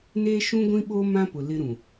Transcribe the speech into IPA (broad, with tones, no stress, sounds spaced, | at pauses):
n eː˦ ʃ ũ˦ ɡʷ ĩ˦ ɓ o˦ m ã˦ p ʊ˨ l ɪ˦ ɾ ũ˨